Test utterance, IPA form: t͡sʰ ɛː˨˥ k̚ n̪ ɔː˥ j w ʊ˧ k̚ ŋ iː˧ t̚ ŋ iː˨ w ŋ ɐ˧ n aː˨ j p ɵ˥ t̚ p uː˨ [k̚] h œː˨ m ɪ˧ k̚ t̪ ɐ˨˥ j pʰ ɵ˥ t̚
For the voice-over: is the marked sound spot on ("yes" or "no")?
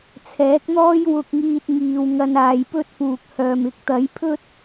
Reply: yes